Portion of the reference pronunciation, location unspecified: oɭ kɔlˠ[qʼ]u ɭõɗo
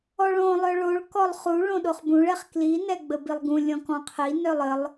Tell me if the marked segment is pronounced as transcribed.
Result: no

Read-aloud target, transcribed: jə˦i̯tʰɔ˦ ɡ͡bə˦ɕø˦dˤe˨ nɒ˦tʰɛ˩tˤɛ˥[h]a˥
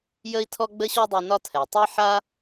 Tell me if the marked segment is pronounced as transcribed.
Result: no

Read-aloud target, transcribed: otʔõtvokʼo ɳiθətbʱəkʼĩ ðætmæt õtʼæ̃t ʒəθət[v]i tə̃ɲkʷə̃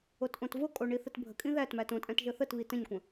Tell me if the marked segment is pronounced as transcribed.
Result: no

